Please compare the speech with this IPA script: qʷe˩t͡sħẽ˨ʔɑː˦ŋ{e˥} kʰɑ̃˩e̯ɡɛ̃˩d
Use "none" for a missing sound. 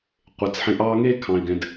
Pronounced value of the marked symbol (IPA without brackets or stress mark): e˥